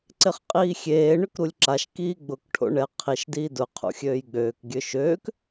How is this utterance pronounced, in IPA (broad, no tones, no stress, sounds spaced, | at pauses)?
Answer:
ǀ ɪ χ qʼ iː xʲ eː ɳ ʏ k ɾ u lʲ ǁ a ʃ k iː ɡ͡b ʊ k ʈʰ o̰ ɳ ɛ qʰ i ʃ d iː d ʊ qʰ ṵ xʲ øː j ɡ͡b øː k ɡʲ ø ʃ øː k